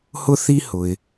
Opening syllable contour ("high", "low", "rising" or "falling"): high